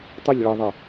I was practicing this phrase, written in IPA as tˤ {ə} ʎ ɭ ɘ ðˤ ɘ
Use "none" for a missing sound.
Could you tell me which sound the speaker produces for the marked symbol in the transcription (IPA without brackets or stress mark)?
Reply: ə